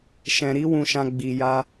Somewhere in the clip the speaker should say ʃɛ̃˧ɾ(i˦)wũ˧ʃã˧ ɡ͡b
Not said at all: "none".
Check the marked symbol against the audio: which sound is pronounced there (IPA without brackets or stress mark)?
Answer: i˦